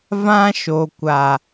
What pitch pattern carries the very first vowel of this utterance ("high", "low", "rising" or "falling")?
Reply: high